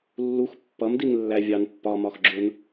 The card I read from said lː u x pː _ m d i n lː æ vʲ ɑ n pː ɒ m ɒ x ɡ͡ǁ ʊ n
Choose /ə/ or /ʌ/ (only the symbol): ʌ